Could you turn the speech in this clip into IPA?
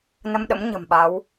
n ə˧ m ɗ ə̰˧˥ m ɲ ə̤˨˩ m ɓ a˨˦ w

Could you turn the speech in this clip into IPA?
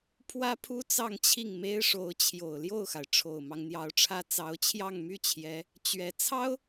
pʰ w ä˥ pʰ u˥ t͡s ɑ˥˧ ŋ t͡ɕʰ i˥˩ ŋ m e˥ ɪ̯ ʂ o˧˥ ʊ̯ t͡ɕʰ j o˨˩ ʊ̯ l j o˥˩ ʊ̯ x a˩ ɪ̯ ʈ͡ʂʰ o˨˩ ʊ̯ m ɑ˦ ŋ n̪ j ɑ˧˥ ʊ̯ ʈ͡ʂʰ ä˥ t͡s ɑ˧˥ ʊ̯ t͡ɕʰ j ɑ˥˧ ŋ m y˥˩ t͡ɕʰ j ɛ˧˥ | t͡ɕ ɥ ɛ˧˥ t͡sʰ ɑ˥ ʊ̯

